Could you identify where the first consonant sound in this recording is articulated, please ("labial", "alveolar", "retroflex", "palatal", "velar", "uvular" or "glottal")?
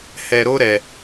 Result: glottal